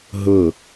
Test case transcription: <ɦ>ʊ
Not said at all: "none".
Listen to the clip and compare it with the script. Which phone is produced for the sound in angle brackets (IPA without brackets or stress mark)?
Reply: ɦ